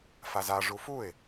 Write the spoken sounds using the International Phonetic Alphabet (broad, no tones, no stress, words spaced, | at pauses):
faza ʐufuɪ̯